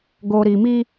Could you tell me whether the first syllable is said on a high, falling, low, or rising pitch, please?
low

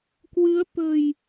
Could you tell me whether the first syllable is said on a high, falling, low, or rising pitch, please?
rising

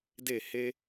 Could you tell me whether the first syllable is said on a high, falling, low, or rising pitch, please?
falling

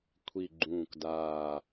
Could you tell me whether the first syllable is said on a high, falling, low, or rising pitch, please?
low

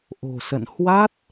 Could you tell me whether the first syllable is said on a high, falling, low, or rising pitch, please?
low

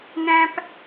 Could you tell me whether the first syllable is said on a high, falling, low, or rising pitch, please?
high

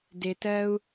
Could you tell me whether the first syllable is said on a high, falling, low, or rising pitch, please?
low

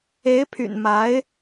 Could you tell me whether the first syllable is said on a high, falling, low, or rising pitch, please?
rising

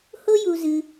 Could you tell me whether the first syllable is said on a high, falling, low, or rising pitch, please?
high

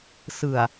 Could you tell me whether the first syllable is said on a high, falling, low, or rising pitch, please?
low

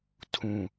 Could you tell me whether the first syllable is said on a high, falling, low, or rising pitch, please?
low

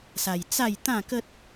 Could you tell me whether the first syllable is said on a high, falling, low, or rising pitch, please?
low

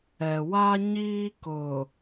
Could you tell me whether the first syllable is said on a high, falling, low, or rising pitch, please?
low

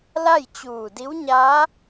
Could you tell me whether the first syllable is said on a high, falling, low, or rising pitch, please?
falling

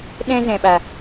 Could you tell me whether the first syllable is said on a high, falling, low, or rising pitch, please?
high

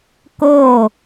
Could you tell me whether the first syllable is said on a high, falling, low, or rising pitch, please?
falling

